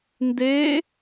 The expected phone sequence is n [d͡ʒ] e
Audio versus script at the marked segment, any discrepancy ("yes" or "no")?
yes